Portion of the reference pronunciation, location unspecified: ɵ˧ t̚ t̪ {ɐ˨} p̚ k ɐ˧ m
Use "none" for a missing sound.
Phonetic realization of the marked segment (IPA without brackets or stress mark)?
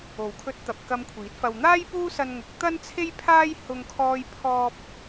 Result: ɐ˨